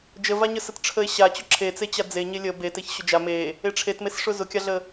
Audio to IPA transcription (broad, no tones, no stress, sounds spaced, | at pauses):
d͡ʒ ə v a ɲ ə s ə t ʈ͡ʂʰ ə e̯ ɕ a t͡ɕ ʊ ǁʰ e t͡s e t͡ɕ a d͡z e ɲ e lʲ ə b e t e ç ɕ ʊ d͡ʒ a m e | e ʈ͡ʂʰ e t m e s ʂ ʊ z ʊ kʲ a ɮ ə